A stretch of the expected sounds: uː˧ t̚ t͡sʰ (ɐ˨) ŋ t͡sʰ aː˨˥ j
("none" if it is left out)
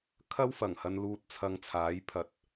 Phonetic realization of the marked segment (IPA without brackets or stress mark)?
ɐ˧